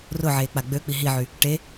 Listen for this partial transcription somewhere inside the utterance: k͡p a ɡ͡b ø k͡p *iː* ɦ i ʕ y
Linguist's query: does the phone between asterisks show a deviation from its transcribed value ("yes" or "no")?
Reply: yes